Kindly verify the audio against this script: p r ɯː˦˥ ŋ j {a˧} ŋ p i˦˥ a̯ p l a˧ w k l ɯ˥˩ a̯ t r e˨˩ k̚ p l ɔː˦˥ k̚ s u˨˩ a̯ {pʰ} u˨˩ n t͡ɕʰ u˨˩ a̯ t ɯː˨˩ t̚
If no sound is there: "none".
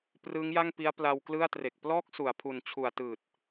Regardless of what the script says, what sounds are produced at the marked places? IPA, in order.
a˥˩, pʰ

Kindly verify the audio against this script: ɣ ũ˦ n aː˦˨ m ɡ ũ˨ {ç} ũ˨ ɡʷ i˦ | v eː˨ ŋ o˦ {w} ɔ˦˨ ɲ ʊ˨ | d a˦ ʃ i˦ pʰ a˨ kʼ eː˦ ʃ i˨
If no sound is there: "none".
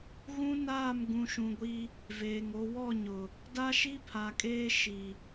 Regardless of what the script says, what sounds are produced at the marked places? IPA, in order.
ʃ, w

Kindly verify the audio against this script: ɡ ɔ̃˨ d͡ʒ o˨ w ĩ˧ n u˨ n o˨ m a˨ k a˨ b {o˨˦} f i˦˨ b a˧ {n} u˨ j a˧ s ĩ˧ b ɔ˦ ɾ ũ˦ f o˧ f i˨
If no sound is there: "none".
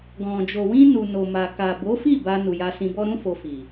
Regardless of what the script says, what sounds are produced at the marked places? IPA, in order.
o˨˦, n

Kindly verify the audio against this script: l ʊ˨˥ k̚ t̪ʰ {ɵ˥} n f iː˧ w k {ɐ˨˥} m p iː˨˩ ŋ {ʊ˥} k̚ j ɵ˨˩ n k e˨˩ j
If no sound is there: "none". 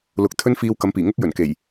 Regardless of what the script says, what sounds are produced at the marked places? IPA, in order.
ɵ˥, ɐ˨˥, ʊ˥

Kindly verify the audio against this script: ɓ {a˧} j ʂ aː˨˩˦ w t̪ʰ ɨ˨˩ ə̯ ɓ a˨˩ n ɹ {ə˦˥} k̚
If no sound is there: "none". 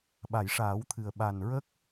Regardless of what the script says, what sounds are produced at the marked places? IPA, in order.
a˨˩˨, ə˦˥

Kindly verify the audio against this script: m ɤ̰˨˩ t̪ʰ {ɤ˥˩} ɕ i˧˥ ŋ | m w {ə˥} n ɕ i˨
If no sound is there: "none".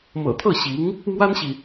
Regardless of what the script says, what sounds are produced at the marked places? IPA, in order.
ɤ˥˩, a˥

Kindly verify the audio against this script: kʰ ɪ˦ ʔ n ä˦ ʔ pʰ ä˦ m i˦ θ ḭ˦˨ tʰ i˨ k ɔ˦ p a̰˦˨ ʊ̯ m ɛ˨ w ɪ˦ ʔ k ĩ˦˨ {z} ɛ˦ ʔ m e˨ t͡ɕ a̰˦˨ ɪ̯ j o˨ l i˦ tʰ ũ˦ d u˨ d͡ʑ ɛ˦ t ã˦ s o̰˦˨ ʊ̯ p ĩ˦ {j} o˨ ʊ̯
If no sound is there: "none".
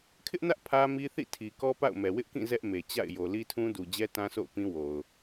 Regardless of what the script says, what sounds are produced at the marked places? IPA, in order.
z, w

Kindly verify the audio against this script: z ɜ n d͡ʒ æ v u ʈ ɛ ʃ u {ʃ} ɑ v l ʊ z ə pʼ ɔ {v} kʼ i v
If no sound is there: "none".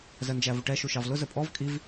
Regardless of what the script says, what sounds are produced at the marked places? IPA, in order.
ʃ, v

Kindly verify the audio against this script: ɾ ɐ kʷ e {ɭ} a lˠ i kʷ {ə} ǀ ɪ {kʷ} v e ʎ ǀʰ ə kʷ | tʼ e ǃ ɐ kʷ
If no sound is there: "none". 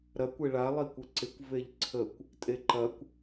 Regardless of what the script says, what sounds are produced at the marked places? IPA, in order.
ɭ, ə, kʷ

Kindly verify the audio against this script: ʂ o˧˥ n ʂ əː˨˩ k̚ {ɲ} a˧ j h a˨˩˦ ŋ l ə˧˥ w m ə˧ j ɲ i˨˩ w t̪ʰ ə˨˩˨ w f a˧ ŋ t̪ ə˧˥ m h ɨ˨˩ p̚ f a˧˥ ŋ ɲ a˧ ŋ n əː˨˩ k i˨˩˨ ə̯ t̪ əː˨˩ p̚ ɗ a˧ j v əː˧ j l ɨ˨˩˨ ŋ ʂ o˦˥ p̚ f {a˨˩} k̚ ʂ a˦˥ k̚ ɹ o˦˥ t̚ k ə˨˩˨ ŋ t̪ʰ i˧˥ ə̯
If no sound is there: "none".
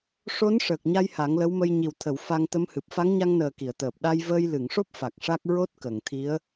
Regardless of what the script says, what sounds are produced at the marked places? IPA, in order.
ɲ, a˨˩

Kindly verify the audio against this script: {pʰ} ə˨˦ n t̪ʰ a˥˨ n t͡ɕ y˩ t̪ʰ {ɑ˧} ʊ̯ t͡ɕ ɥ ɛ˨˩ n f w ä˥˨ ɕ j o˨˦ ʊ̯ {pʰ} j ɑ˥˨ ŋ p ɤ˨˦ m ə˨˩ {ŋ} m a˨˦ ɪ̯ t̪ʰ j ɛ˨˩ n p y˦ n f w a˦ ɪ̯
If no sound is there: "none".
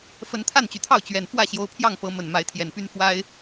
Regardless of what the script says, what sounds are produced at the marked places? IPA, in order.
f, ɑ˥˨, pʰ, n

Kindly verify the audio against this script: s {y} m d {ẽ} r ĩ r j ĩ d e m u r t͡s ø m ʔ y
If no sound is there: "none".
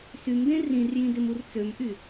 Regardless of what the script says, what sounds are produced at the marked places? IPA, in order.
y, ẽ

